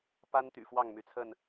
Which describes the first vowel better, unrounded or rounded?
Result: unrounded